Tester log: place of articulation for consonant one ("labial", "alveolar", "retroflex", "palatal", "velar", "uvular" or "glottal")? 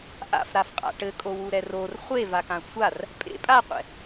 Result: glottal